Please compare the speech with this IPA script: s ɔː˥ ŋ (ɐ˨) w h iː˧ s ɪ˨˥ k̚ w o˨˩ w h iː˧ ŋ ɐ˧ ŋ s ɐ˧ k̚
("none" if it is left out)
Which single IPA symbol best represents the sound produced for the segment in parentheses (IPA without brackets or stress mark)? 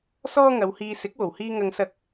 ɐ˨˧